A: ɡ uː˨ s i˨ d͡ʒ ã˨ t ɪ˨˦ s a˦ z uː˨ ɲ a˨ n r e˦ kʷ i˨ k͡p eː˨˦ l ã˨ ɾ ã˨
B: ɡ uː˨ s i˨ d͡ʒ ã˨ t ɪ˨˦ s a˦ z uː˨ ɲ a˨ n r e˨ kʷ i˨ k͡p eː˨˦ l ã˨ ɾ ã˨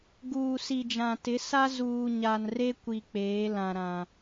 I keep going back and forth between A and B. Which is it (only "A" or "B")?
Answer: A